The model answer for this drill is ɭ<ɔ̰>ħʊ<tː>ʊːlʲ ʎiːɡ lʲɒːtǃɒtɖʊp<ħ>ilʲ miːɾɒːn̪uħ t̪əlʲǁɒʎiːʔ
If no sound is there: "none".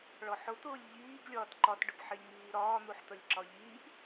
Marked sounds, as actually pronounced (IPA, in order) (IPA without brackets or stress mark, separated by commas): ɔ, t̪, ħ